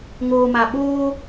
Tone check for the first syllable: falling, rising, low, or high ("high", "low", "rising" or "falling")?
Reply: low